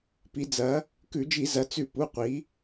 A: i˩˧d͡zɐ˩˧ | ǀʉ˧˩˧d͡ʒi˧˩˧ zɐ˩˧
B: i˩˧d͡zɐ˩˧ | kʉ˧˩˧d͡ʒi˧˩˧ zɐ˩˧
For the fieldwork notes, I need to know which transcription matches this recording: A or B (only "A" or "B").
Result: B